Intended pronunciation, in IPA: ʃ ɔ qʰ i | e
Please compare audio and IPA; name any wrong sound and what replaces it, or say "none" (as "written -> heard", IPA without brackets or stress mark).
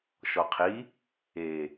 none